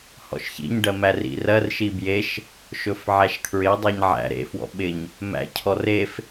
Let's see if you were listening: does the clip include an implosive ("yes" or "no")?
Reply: yes